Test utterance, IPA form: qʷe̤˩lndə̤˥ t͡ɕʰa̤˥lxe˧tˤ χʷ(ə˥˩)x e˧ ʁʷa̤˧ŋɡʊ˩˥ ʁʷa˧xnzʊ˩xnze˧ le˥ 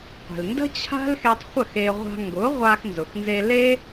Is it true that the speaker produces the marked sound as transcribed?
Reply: yes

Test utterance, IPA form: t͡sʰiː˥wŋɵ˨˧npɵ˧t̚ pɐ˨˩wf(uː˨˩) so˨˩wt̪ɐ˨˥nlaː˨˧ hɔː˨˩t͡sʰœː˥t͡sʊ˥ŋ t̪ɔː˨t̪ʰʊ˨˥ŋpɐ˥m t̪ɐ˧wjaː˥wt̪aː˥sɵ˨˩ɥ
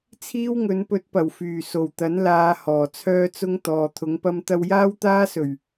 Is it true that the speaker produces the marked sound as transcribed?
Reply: no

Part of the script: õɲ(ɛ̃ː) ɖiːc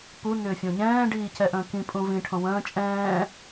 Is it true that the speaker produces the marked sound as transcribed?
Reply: yes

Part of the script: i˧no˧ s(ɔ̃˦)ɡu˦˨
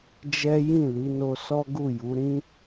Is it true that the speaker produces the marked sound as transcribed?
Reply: no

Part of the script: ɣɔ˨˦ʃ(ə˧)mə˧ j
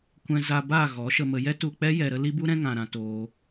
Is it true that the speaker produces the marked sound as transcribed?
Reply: yes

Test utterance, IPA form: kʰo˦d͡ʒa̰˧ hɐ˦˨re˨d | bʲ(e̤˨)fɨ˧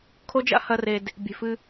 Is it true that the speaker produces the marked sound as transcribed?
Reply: yes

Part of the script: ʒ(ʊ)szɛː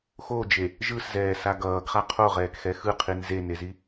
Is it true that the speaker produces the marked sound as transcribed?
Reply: no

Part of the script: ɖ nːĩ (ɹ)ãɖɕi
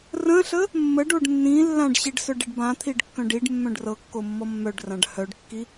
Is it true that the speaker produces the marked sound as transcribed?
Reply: no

